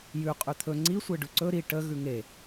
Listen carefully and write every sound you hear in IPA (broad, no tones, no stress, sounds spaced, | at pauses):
j ʉ qʼ ʉ t̪ʰ ɵ ŋ͡ǀ i sʷ e ɖ ʉ ǀ ɵ ɾ i ʈ ə ɣ ʉ ŋ e